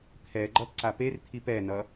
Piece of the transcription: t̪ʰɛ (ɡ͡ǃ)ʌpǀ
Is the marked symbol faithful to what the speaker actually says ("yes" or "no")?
yes